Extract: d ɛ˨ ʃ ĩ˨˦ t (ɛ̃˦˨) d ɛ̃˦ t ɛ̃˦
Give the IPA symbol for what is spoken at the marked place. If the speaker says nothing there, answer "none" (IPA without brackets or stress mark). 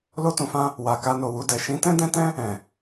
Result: ɛ̃˦